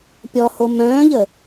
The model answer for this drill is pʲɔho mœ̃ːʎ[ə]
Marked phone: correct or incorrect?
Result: correct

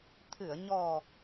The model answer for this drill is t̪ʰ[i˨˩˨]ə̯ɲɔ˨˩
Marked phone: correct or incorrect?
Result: incorrect: ɨ˨˩˨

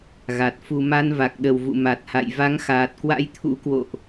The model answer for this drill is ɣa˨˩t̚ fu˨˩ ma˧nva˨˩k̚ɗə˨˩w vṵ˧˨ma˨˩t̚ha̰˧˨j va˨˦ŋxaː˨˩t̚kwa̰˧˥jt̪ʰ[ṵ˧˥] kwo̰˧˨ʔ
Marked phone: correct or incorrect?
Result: correct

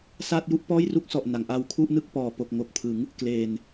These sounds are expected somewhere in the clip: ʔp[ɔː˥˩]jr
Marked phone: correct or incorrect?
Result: correct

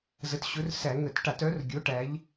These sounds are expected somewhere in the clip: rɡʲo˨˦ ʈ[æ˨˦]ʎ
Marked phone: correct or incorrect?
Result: correct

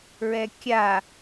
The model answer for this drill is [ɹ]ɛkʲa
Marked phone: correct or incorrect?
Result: correct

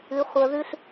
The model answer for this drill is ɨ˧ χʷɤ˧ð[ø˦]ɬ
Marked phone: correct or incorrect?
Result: incorrect: ʉ˦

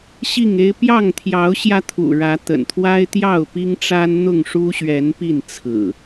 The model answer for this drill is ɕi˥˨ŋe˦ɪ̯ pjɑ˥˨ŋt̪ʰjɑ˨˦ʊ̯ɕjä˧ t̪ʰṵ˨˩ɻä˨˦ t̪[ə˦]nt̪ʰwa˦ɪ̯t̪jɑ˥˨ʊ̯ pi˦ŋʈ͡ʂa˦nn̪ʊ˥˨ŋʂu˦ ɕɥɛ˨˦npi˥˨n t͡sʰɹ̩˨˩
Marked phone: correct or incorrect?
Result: incorrect: ə̰˨˩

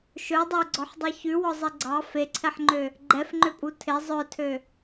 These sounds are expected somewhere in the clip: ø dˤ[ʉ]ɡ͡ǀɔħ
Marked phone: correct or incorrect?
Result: incorrect: ø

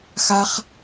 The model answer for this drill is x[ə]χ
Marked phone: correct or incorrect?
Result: incorrect: a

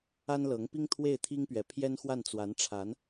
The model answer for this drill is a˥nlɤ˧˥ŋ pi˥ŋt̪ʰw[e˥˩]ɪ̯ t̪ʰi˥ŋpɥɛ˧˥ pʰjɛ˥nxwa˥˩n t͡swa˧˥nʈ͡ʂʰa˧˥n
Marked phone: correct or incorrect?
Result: correct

